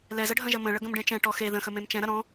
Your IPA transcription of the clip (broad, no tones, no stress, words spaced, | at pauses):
lɛzəɖʱɐ̃ʒɐ mə̃ɭə ɡə̃mɖẽt͡ʃɛ̃ ʈɔxe ðə̃xə mẽmt͡ʃɛ̃ ɾɐɾɔ̃